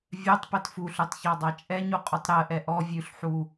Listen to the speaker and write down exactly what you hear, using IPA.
vʲ œ tˤ p ɛ t f u ɬ ʉ tˤ ç ɑ dˤ ɑ t͡ʃʼ ɛ ɲ u qʼ u tˤ ɾ ɜ ʔ ɛ ʔ ɔ vʲ ʉ ɬ ħ u

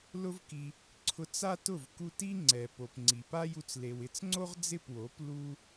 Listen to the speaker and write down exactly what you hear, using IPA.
l ʊ˦ v k i˧ | ǀʰ ʊ˧ t͡s a˦ t ʊ˦˨ v k u˧ t i˦ ŋ͡ǀ ɛ˨ p o˨ p ŋ͡ǀ i˨ p a˦ j u˧ t͡s l e˨ w ɪ˧ t͡s ŋ͡ǀ o˦ ʁ d͡z ɪ˦˨ p w o˨˦ p l u˦

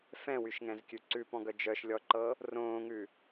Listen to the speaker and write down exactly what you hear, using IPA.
f ɛ̃ w y ʃ ŋ ɛ̃ z kʲ ʉ ǀ ʉ p ɔ̃ ɡ œ d͡ʒ œ ʃ lʲ ɔ ǃ ɤ | r õː ŋ ʉ

